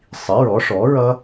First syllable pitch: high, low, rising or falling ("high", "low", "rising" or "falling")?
rising